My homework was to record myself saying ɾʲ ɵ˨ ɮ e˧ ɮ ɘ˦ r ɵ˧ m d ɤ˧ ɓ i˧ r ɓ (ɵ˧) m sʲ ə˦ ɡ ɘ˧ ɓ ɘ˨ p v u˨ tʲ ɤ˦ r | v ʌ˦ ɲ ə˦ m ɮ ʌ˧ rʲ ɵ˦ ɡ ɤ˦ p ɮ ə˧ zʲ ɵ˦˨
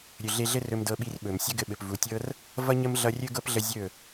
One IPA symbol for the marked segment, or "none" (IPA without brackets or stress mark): ɵ˨